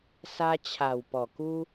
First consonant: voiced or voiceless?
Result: voiceless